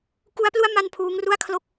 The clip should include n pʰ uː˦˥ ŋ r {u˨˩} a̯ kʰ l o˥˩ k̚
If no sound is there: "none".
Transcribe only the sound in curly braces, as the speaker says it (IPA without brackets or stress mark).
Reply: u˥˩